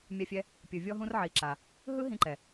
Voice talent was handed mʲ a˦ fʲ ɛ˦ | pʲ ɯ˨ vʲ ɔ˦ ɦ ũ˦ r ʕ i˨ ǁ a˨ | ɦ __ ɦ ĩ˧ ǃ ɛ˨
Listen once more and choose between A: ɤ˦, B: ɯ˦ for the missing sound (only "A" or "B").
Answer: B